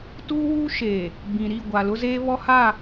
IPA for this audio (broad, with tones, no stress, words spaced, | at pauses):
tuː˦wuː˦ʃeː˨ | bĩ˨ ɾi˦˨ɡʷa˨lʊ˦zeː˦ βɔ˦ha˦˨